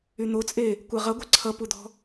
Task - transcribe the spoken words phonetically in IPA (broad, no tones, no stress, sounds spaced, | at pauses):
y n̪ o t͡sʼ e | kʷ ɜ ʁ ʌ ɡʷ ɐ ǀʰ ʌ p u d̪ ɔ̤